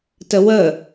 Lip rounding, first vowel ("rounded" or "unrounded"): unrounded